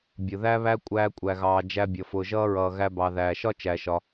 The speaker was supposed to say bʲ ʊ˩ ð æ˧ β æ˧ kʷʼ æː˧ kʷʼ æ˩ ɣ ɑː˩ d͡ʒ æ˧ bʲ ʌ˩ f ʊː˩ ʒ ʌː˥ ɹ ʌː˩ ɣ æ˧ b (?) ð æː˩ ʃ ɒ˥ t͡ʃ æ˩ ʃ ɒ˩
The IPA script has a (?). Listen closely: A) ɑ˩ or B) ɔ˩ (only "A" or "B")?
A